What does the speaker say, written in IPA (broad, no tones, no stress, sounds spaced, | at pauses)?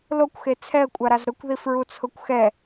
l o kʷ x e t͡sʰ ɛ ə̯ kʷʼ a ɾ a z ɾ ʊ kʷ ð i f ɹ u t͡sʰ ʊ kʷ x ɛ